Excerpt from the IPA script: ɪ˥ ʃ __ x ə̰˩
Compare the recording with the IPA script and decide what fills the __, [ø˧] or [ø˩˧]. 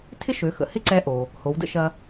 ø˩˧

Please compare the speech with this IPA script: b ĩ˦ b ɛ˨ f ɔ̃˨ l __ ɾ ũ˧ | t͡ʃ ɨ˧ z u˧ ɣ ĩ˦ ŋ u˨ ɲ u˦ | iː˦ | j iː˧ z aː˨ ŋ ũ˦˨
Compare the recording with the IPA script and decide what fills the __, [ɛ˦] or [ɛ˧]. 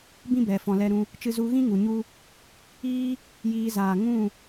ɛ˧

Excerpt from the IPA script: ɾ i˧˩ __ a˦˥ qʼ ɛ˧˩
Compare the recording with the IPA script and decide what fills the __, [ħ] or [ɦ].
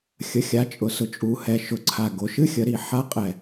ħ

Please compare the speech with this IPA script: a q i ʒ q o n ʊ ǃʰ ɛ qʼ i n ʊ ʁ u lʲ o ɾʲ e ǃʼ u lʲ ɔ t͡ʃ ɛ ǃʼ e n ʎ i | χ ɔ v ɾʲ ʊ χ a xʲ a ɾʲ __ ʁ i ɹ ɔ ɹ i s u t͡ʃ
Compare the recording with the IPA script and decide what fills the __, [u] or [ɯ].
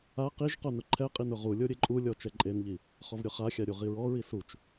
u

